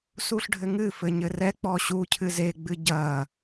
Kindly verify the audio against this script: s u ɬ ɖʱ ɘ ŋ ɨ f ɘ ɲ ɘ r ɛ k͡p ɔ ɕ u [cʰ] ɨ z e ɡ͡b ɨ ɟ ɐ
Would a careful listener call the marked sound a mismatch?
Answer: no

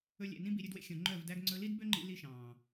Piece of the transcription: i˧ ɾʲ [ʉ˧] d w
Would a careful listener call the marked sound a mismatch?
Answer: no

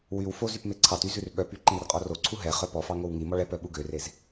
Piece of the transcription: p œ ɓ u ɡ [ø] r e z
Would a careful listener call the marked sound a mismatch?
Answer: no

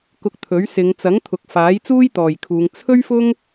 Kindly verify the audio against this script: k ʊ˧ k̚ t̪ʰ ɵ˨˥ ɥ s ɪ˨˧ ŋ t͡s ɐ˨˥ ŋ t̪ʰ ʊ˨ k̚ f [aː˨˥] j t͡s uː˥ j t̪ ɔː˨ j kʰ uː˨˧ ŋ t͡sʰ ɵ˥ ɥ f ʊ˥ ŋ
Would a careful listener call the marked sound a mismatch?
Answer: no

